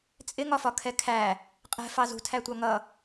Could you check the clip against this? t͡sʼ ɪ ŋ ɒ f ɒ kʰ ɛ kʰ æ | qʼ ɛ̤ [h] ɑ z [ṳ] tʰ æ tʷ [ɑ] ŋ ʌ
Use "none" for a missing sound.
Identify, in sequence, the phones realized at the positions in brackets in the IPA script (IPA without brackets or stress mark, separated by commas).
f, ṳ, ɑ